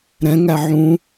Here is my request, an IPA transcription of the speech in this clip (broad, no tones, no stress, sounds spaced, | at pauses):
ɾ ɛ̃ ŋ æ ʕ ũ